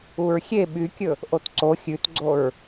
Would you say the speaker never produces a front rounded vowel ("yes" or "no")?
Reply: no